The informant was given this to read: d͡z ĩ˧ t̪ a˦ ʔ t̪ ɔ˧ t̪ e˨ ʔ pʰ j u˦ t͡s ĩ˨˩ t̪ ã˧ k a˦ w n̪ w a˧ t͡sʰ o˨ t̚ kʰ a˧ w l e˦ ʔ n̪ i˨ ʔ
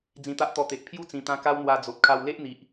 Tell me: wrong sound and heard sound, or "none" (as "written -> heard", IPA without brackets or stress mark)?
t͡sʰ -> d͡z